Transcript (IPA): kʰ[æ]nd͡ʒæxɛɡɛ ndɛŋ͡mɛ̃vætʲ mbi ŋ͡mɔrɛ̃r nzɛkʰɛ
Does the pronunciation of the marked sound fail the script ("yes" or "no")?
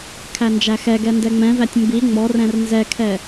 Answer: no